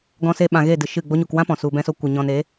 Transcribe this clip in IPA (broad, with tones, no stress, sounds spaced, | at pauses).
ɡ ɔ̃˧ s e˧ ɓ ã˨ ɣ e˦˨ d ɨ˨ ʃ ɨ˦˨ ɡ͡b o˧ ɲ u˨ k w ã˦ p ɔ̃˨ s u˧ b ɛ̃˦ s o˦ kʷ ɨ˨ ɲ ɔ̃˧ n e˨˦